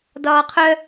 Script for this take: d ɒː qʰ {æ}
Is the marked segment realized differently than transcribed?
yes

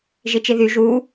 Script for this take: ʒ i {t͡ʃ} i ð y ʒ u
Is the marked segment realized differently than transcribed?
no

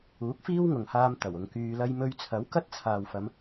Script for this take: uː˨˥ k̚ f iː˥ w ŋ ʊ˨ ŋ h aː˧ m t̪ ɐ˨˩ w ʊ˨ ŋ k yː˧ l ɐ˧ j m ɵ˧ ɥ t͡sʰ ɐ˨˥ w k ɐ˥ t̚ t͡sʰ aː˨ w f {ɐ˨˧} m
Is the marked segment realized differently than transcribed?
no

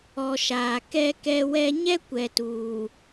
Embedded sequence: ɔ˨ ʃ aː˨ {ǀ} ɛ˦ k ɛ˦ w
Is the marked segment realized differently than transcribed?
yes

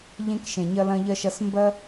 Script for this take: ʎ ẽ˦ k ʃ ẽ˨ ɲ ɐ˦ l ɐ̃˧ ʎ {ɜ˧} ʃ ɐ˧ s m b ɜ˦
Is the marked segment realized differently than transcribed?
no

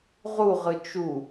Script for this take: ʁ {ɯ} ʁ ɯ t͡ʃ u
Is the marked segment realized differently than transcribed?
yes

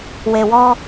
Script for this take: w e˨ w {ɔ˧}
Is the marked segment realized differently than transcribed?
no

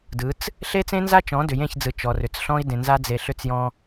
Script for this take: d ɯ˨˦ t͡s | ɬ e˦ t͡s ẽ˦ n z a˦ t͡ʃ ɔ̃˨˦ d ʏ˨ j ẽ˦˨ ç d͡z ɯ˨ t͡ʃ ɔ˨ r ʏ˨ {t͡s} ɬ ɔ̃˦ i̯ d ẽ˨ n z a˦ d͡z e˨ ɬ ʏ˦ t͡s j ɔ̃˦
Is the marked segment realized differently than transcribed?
no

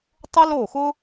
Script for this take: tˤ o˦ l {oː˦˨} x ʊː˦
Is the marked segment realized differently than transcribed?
no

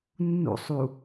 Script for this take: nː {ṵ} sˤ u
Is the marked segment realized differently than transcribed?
no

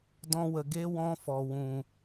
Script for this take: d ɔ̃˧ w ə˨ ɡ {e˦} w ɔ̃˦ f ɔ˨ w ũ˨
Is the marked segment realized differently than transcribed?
no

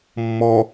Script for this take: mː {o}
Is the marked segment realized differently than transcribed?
yes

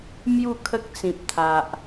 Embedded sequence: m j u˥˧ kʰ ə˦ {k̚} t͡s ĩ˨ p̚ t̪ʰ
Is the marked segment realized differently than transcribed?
no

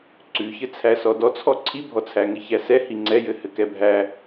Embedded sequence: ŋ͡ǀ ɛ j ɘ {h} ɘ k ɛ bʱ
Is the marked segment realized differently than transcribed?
no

